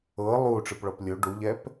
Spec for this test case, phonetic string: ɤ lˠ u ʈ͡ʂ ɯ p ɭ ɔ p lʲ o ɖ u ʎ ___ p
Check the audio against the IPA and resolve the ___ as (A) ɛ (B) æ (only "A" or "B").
A